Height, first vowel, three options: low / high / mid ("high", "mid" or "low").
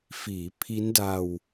high